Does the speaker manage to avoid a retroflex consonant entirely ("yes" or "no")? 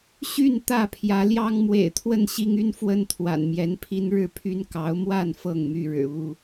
no